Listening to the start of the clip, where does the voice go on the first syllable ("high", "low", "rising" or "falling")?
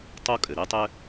high